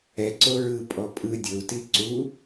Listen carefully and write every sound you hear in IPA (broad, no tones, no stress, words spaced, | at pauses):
ɛǀo ɹɯpʼɔ pʼɯ dʲɤu̯ti ǀu